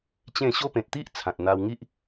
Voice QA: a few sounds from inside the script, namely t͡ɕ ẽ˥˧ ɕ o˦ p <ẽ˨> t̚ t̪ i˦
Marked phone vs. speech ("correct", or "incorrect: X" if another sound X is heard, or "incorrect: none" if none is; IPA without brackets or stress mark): correct